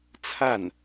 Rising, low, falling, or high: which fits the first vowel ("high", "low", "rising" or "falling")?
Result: falling